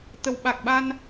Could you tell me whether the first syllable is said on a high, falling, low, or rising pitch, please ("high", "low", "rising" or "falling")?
low